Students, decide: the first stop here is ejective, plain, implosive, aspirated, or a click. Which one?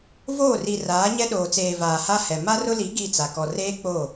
implosive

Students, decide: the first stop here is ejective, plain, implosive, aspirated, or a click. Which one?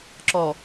click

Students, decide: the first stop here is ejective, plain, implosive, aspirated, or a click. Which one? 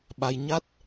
implosive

